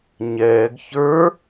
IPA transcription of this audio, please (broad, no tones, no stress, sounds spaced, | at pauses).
ɲ ɛː ɡ ç ə˞